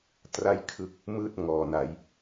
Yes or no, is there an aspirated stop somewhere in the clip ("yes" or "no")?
yes